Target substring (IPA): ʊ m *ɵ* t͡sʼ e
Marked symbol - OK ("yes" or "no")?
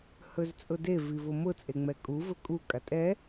no